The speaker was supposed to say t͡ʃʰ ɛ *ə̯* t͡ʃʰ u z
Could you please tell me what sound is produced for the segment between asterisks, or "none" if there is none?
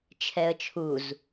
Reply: ə̯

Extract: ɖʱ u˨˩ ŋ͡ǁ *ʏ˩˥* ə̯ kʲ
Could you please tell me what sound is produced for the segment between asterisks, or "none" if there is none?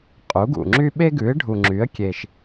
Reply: y˩˥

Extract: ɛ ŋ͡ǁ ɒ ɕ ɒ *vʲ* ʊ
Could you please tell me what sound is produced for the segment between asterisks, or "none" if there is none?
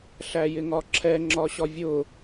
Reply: vʲ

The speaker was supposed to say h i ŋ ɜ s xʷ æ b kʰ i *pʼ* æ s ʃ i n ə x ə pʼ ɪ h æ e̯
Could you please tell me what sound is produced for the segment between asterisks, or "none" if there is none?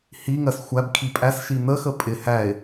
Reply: pʼ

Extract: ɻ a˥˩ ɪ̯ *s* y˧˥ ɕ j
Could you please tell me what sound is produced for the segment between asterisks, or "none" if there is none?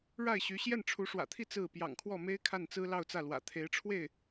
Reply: ɕ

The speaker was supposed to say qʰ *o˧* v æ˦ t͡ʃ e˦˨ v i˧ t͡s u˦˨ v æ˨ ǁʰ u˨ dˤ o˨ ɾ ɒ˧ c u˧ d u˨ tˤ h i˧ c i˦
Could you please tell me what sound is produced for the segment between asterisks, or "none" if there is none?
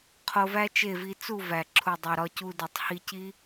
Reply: o˧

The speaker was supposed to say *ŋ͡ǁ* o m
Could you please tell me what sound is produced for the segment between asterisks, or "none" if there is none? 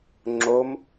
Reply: ŋ͡ǁ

